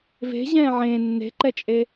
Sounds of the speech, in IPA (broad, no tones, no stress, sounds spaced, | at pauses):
v e̤ ʑ ɛ̃ː ʕ ẽ nː e̤ ǃ ɛ t͡ʃʼ e